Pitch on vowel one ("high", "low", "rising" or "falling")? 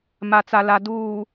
low